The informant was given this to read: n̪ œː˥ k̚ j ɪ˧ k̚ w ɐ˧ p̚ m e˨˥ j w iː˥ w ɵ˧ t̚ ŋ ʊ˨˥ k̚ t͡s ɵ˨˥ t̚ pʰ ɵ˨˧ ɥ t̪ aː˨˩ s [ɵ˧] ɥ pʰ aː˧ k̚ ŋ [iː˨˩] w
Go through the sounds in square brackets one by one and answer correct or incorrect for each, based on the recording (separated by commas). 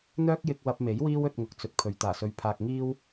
correct, incorrect